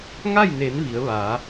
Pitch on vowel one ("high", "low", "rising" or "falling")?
falling